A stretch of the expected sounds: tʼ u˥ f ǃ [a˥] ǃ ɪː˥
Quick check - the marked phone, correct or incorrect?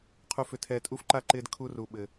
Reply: correct